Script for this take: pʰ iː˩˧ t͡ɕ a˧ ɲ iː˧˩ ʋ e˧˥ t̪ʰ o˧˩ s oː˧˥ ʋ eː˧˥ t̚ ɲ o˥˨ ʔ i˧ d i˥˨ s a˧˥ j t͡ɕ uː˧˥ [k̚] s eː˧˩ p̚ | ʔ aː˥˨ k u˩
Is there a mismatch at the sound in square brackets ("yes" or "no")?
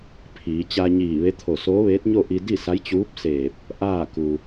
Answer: yes